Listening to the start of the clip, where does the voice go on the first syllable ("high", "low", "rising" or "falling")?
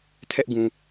high